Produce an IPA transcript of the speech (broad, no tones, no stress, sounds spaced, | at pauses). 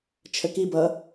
t͡ʃʰ ə k i b ʌ